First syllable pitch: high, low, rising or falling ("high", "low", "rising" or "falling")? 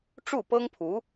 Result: falling